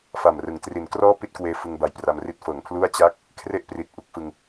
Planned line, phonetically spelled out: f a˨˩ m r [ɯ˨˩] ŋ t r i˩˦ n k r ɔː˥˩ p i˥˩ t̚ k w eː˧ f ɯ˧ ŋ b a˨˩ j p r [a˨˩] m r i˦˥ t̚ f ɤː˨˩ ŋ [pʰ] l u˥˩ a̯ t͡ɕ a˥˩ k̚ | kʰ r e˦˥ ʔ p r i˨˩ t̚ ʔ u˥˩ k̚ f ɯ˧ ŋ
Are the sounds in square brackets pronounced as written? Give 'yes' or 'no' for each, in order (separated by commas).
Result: no, no, yes